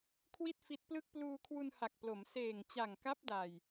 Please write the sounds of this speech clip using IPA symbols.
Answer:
kʰ w i˥˩ t̚ f i˦˥ t̚ p l ɯ˥˩ k̚ p l uː˧ kʰ w u˧ n h a˨˩ k̚ p l o˩˦ m s eː˨˩ ŋ t͡ɕ a˨˩ ŋ k a˦˥ p̚ d a˧ j

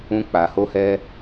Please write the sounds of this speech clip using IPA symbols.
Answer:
ũ˧ k͡p a˨ h o˧ h ɛ˧

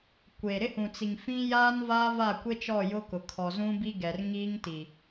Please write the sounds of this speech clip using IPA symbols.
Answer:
kʷ e˨ ɾ ɪ˦ h ũ˨ t͡s i˨ ŋ f ĩ˦ j aː˦ n v aː˦ v a˦˨ kʷ e˦ t͡ʃ ɔ˦˨ j ʊ˦ k ʊ˨ kʰ ɔ˨ z ũ˦ b i˦ ɡ ɛ˨ r ŋ iː˦ ŋ t i˨

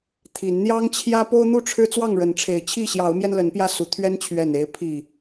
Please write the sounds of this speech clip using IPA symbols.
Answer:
t̪ʰ i˨˦ n n̪ j ɑ˦ ŋ t͡ɕʰ j ä˦ p o˦ ʊ̯ n̪ u˥˨ ʈ͡ʂʰ ɻ̩˦ t͡s w ɑ˥˨ ŋ ɻ ə˨˦ n ʈ͡ʂʰ e˨˦ ɪ̯ t͡ɕʰ i˥˨ ɕ j ɑ˨˦ ʊ̯ m j ɛ˧ n l ə˨˦ n p j ä˧ s u˨˦ t̪ʰ ɥ ɛ˦ n t͡ɕʰ ɥ ɛ˨˩ n e˨˦ ɪ̯ pʰ i˨˩

